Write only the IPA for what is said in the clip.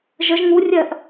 ʒ ə ʒ ŋ u rʲ ɜ ʔ

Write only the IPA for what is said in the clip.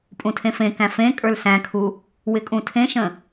pʼ ũ tʰ ẽ f ẽ k æ̃ f ẽ kʼ ə˞ l s æ̃ kʰ u | w ɪ kʼ ũ tʰ ẽ ʃ ə̃

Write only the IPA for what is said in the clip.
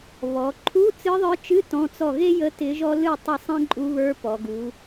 β ɔ˩˧ ǃʰ u˧˥˧ t͡s ɨ˧˥ ðˤ ə˞˧˥ t͡ʃ ɨ˧˥˧ t ɔ̃˧˥˧ t͡s ɔ˥˩ ɣ e˥ j ə˧˥ t ɪ˧˥ ʒ ɔ˥ l ɨ˥˩ tˤ ə˥˩ sˤ ẽ˥ ǃʼ u˧˥ β ə˞˧˥ p ɔ˩˧ ɡ u˩˧

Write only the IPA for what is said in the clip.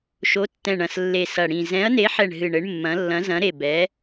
ʃ o˨˦ tː ɛ̃˨˩ ɳ ɐ̃˨˩ s lː e˨˩ s ɐ˨˩ ɽ ĩ˨˩ z ɛ̃˨˦ ɐ̯ n e˨˦ ħ ɛ˨˩ ɳ ɦ ɨ˨˩ ɳ ɘ˨˦ ɳ mː ɐ̃˨˦ lː ɐ̃˨˦ z ɐ̃˨˦ ɾ e˨˩ b ɛ˨˦

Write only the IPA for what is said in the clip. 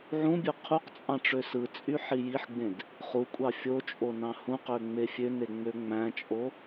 ʕ ũ bʲ ø qʰ u q t͡sʼ ɑ̃ ʈ͡ʂ ø s ɯ t͡sʼ y ħ i j i ħ ɡ͡b ẽ d | χ u kʷʼ ɑ fʲ o t͡ʃʼ o n ɑ̃ h ũ q ø ŋ͡m e fʲ ø n e ŋ͡m ø ŋ͡m æ̃ t͡ʃʼ o

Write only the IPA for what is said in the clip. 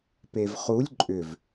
p e v χ u lʲ ǃʼ ʏ v

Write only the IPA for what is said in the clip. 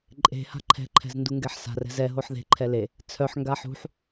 ǃʼ e̤ h a̤ ǃʰ ɛ̤ ǃʰ ɛ̤ z n d u ŋ ɡ ɛ ħ s a̤ r ɛ̤ z ɛ ɦ o ħ ð e̤ ǃʰ ɛ l e | t͡sʰ œ ħ ŋ ɡ a ħ ṳ ħ

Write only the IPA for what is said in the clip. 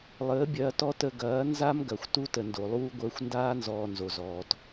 lˠ əː˨˦ bʲ ɐː˧ t ɔ˦ t ə˧ ɡ ɐː˨˦ n z a˦ m ɡ ɐ˨ xʷ t u˦ t ə˨ n d o˨ lˠ uː˦ ɡʷ əː˧ xʷ n d aː˦ n z ɔː˧ n z o˨ z ɔː˨ t

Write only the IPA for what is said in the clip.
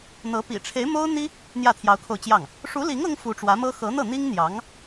n̪ ɤ˧˥ p ḭ˨˩ ʈ͡ʂʰ e˧˥ ɪ̯ m o˥ ʊ̯ n̪ i˥ | n̪ j ä˥˩ t̪ʰ j ɑ˧˥ ʊ̯ kʰ o˧ ʊ̯ t͡ɕ j ɑ˥˩ ŋ | ʂ u˧˥ l i˧˥ ŋ ɤ˥ ŋ f u˧˥ ʈ͡ʂ w ä˧˥ m ɤ˥ x ɤ˧˥ n̪ ɤ˥˩ n̪ i˥ ŋ n̪ j ɑ˧˥ ŋ

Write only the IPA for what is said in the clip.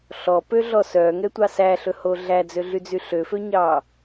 ɬ ɔ p ø ɮ ɔ s œ ŋ ɛ tʷ ɑ s æ ɬ ɵ h o ɮ æ d͡z ø ɮ y d͡z y ɬ ø f ø ɲ ɑ

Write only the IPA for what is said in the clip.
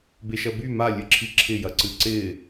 b e ʃ ɐ b y m a lʲ ɨ ǁʰ i ǁʰ ɪ j ɐ ǀ ɨ ǀ ɪ

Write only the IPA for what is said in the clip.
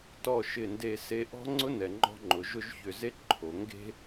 t ɔ˧˩ ʃ ɪ˧˩ n d e˧˩ s e˧ ʔ ɔ̤˥ ŋ͡ǀ ʊ˥ n ɛ˩˧ ŋ͡ǃ ɔ̤˥ ŋ͡ǃ ʊ˩˧ ʒ ʊ˥˧ ʒ ç ʏ˧˩ z e˥ ǃʰ o˩˧ ŋ ɡ e̤˥

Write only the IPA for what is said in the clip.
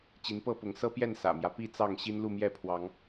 t͡ɕ i˨˦ n p ɤ˥˨ p ʊ˨˦ ŋ s ɤ˦ p j ɛ˥˨ n s ä̰˨˩ m j ä˦ p i˥˨ t͡s ɑ˥˨ ŋ ɕ i˦ n l u˥˨ m j ɛ˥˨ pʰ w ɑ˨˦ ŋ

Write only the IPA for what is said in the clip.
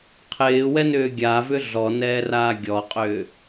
qʰ ɪː w ɛ n ʏː ɡʲ a v ʏ ɮ ɔ n ɛː r aː ɡʲ ɔ qʼ ʏː

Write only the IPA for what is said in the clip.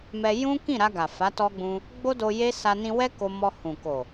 m ɛ˧ j ũ˦ k ĩ˦˨ ɾ a˧ ɡ a˨ f a˨˦ t ɔ˧ ɡ͡b ũ˧ | ɡ͡b o˦ d o˧ j e˦ s a˧ n ĩ˧ w ɛ˦ k o˧ m ɔ˧ h ũ˨ k o˨

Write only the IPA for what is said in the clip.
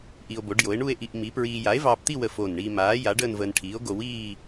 ʔ i˧ o̯ b o˨˥ ɖ j o˨˥ e̯ ɳ u˥˧ e̯ ʔ i˧ ʔ m i˨˥ p ɹ iː˧ j a˨˥ e̯ v ɑː˧ p t̪ i˥˧ w ə˧˩ f o˧˩ n ɳ iː˧ m aː˨˥ j a˨˥ ɖ əː˥˧ n v əː˧ n ʈʰ iː˨˥ o̯ ɡ o˧ w iː˥˧

